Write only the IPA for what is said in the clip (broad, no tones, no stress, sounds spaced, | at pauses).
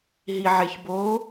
ɦ i ʕ e ç b o